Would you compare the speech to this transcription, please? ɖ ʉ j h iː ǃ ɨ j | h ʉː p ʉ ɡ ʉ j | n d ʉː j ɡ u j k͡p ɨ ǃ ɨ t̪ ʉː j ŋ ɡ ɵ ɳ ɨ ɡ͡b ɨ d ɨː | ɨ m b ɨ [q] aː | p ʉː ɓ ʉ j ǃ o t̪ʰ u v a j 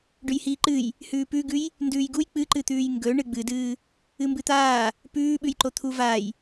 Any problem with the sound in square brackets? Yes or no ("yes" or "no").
yes